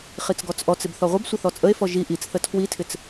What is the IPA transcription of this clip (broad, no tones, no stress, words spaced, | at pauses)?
χit͡sɡɔt͡sʔɔt͡sɪb θɔʁʷəbsʷə θɔt͡sʼəe̯fɔ ʒi ʔit͡s θətʰwitʰɪt͡s